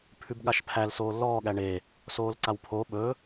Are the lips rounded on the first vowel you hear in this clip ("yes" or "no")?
yes